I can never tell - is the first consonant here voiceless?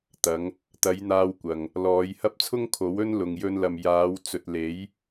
yes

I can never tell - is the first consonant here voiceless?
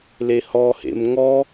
no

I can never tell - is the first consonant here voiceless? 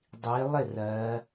no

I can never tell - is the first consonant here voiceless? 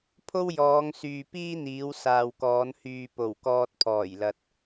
yes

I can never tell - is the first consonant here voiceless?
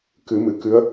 yes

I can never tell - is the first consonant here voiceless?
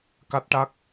yes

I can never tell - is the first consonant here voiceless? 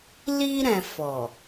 no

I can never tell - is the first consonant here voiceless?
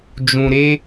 no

